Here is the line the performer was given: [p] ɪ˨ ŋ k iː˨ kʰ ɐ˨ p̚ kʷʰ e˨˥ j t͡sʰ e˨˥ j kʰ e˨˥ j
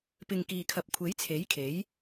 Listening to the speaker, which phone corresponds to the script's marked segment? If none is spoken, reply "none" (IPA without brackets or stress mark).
p